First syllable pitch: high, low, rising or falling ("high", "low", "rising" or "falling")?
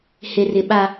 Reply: low